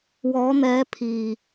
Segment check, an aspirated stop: present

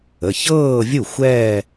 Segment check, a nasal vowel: absent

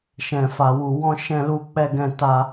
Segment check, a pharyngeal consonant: absent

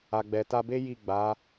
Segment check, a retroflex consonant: absent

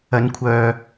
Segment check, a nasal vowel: absent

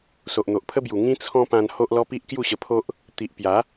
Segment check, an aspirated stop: present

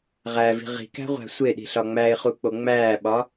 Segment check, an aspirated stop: absent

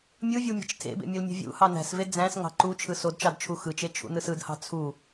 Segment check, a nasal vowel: present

